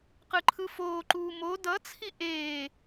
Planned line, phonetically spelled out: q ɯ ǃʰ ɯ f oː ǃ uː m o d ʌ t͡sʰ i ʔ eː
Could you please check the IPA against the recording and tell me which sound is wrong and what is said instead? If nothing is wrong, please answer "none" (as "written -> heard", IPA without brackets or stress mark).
none